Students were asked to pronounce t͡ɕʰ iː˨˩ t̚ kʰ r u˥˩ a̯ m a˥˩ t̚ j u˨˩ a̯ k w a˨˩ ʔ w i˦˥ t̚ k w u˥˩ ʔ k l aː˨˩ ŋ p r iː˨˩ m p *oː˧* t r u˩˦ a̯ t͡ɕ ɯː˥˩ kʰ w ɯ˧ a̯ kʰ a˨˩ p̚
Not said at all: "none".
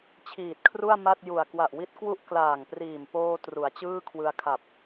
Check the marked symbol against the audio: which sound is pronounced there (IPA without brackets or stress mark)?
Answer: oː˧